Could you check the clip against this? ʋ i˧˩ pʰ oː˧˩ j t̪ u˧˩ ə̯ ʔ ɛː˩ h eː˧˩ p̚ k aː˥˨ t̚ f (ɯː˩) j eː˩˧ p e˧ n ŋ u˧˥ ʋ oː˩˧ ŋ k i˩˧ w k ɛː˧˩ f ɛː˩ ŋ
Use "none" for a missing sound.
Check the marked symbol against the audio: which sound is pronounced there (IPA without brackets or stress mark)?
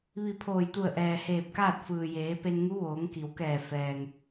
ɯː˩